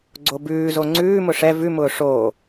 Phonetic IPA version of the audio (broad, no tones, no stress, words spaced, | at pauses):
ɡ͡ǀobʉːzo ŋ͡ǀʉːmʊ ʂɛ vʉmʊː ʂoː